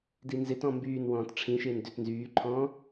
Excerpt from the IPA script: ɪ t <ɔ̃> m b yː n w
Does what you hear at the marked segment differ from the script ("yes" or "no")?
no